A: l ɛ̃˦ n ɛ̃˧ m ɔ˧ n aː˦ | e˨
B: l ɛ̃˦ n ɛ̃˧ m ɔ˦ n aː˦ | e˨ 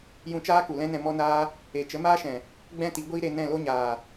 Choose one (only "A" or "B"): B